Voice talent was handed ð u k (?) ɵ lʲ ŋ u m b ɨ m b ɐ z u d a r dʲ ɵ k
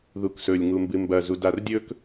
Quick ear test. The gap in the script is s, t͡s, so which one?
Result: s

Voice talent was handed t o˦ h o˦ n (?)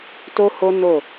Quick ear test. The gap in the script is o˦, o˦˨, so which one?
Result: o˦˨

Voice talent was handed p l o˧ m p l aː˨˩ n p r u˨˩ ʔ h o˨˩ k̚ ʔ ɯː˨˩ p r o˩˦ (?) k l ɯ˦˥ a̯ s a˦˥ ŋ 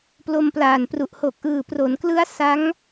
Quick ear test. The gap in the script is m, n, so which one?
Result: n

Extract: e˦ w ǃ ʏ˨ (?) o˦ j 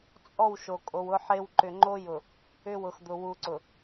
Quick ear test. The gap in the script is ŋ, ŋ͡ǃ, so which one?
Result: ŋ͡ǃ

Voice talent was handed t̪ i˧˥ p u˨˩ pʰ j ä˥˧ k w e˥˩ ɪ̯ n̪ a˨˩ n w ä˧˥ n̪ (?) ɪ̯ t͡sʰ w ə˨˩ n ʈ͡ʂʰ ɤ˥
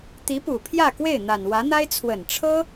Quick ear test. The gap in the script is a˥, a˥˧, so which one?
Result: a˥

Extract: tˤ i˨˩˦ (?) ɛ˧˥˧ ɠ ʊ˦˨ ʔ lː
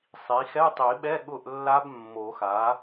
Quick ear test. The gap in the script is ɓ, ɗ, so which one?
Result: ɓ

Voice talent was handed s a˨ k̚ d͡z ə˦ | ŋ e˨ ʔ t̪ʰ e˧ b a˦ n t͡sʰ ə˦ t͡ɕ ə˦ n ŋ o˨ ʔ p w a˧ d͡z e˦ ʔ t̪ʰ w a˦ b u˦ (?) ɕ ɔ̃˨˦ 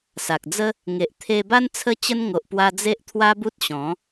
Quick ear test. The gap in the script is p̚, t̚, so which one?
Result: t̚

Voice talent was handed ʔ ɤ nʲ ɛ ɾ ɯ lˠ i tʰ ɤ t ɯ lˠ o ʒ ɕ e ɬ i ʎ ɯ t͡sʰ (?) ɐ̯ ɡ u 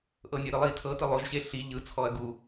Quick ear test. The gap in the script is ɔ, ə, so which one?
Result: ɔ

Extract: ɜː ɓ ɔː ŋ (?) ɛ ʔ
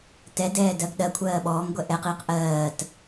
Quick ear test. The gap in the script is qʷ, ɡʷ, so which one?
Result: ɡʷ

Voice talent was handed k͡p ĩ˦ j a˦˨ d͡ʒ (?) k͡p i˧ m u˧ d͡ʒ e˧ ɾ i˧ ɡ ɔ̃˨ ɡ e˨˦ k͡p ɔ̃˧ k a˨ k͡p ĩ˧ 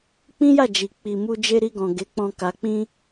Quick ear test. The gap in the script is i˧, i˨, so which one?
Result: i˨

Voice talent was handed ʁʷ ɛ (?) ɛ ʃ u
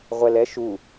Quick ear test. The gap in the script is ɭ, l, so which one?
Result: l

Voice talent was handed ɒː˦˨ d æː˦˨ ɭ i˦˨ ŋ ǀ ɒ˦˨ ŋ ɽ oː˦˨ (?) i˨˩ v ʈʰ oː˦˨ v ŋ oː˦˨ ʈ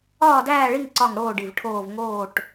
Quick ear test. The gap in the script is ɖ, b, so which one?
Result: ɖ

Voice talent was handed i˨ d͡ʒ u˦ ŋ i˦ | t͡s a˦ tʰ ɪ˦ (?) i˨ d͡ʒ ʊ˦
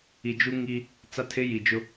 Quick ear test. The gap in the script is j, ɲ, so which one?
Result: j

